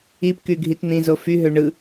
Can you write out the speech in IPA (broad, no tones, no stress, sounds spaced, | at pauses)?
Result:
i p k y ɡʱ i t n̪ ĩ z o f y ɦ ø ɳ ɯ